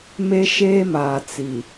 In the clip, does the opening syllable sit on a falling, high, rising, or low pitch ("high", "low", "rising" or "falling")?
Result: high